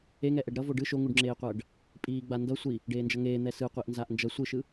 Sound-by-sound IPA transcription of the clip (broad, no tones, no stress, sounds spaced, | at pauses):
e ŋ ɛ ʔ ɛ ɖ ɾ ʌ v o ɖ ɯ ʃ o ŋ u ɖ ŋ͡ǁ eː qʷ ʌː ɖ | pʼ iː ɡ͡b a n d ʌ sʷ i | ɖ eː n d͡ʒ ʌ ŋ eː n̪ ɛ s ɯ qʷ i ʔ n z a ʔ n d͡ʒ ʌ sʷ ɯ ʃ ɯ